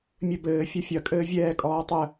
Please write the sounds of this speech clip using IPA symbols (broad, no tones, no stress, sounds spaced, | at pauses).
mʲ ɘ b ɘː fʲ ɐ fʲ ɐ kʼ ɘː vʲ ɛː kʼ ɔː tˤ ə